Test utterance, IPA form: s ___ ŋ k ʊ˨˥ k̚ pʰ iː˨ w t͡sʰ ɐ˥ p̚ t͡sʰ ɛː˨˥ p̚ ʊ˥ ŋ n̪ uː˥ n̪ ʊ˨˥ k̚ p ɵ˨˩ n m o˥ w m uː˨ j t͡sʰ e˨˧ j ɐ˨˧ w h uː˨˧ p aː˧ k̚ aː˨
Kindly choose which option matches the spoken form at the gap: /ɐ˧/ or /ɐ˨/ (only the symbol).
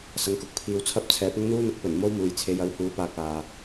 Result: ɐ˨